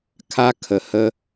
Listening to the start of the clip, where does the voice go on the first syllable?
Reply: high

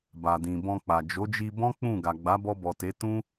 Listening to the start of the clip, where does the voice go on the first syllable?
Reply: low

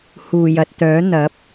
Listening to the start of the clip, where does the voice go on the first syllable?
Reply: low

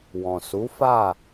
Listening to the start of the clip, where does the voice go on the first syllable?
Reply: low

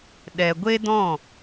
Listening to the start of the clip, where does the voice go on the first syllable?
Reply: low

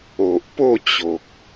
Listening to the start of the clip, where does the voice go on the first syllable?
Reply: low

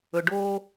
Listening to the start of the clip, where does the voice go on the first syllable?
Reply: low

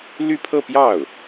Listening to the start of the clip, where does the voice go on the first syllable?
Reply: falling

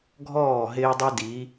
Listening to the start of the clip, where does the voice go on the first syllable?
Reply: falling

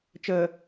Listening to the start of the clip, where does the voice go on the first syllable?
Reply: low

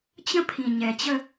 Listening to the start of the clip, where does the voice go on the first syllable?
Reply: high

